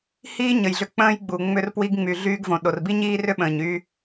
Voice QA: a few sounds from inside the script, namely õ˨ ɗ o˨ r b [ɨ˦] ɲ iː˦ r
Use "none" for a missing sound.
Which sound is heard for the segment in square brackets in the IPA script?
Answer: i˦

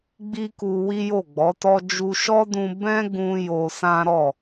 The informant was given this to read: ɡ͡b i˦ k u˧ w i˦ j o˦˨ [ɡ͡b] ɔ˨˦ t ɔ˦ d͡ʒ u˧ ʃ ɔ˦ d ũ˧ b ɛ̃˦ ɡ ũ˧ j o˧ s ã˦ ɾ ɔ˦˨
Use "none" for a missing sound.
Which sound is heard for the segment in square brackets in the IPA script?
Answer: ɡ͡b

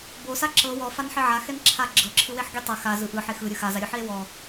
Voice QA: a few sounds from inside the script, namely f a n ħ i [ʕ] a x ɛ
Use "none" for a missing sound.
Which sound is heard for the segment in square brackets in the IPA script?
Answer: ʕ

